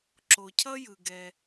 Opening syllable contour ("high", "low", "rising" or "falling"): low